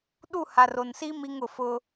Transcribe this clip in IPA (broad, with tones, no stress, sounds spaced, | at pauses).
ɗ u˦˨ h a˨ r o˨ n s i˦ m i˦ ŋ ʊ˨ f ʊ˦